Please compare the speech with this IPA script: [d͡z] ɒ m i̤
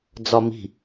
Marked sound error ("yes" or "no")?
no